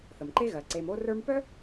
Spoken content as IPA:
θə˩mǃe˥ ɣɜ˩ǀe˨m o˦rə˞˦m pœ˥

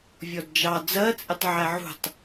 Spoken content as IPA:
vʲɔdd͡ʒɑ d͡zɜt͡sʼɪtˤ ʕæʕṳtˤ

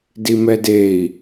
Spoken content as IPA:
dimɛdei̯

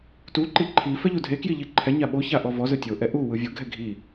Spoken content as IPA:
tuǃi ǃʰifɛ ʎudʱekji ʎiǃʰɛɲa ɓoça ʔɔvɔzɯ tʲoʔɛ ʔu wɯvʲoɡʱɛ ɡʱi

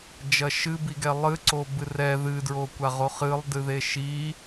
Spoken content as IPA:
d͡ʒɐʃɨbiɡɛ lˠɨ ǀobɨrɛ ðɨdɹo kʷaʁoχɨlˠ dɨðeʃi

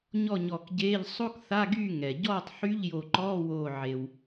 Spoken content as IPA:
ɲɔ˥˨ɲɔ˧˩kɟeː˧˥˧ʎ sˤo˥kθa˧˥˧ɡyː˥˨ ŋɛ˩ ɟɔː˥˨tˤħy˧˥˧ʎ jo˧˩ǃɔː˧˥˧woː˧˩ ʕe˩w

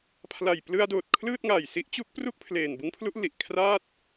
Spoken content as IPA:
pʰla˨˩jplɯ˧a̯doː˨˩t̚ kʰlɯː˥˩t̚ŋaː˨˩jsi˦˥ʔt͡ɕu˦˥k̚ pru˥˩k̚pʰleː˨˩n bɯ˦˥ŋpʰlu˦˥ʔ li˨˩ʔkʰraː˥˩t̚

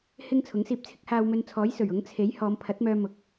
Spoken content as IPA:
hɪ˥ŋ t͡sʰʊ˨˥ŋsiː˧p̚ t͡sʰɪ˥k̚haː˧wmɵ˧nt͡sʰɔː˨˥j sɵ˨˩ɥ ʊ˨˥ŋ t͡sʰe˨˥j hɔː˨˧mpʰɐ˨˥t̚mœː˧ mʊ˨k̚

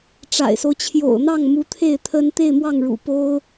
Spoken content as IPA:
ʈ͡ʂa̰˨˩ɪ̯so˦ʊ̯ t͡ɕʰjo̰˨˩ʊ̯n̪ɑ˥˩ŋ mu˧˥t̪ʰe˥˩ɪ̯ t̪ʰə˥n t̪e˥˧ɪ̯mwɑ˥˩ŋɻṵ˨˩ po˥ʊ̯

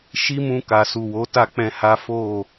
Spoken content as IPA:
ʃi˦mũ˧ka˨ su˨wo˨˦ta˦˨ k͡pɛ̃˧ha˦ fo˦˨

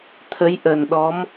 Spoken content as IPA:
t̪ʰə˨˦jʔə˨˩n ɗɔ˨˦m

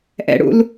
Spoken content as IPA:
ʔɛ̰ɽṵl

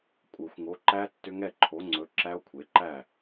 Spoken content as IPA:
kʷʼɯ˨˩˦xʷŋo˨˥ǃæ˦˥ tːʏ˦˥ŋɛ˥˨ ǃʰo˨˥ŋ͡ǀɵ˨˥ ǁæ˦˥o̯kʷʰe˨˥ǃæ˥˨

